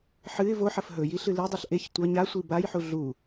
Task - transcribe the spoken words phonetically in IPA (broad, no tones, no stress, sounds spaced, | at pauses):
ħ ɨ ɪ̯ v o ħ ɐ f ɦ ɵ j i ɬ ɨ l i dˤ o ɬ ʔ e ç tʷ ɐ ɲ a sʷ i b a j ħ u ɮ u